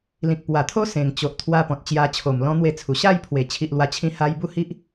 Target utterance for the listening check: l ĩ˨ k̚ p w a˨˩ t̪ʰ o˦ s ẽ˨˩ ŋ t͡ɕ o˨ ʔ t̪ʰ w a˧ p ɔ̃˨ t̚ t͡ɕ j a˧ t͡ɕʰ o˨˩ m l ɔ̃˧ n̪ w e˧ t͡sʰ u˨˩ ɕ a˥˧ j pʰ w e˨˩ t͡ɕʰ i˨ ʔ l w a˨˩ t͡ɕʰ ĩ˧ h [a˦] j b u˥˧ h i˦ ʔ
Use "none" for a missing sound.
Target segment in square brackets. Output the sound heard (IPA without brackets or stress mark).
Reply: a˧